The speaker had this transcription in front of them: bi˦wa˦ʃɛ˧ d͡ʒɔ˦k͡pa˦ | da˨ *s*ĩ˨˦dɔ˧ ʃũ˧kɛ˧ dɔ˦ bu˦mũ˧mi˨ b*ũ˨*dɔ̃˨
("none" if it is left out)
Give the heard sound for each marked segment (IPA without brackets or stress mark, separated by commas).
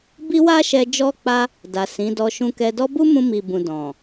s, ũ˨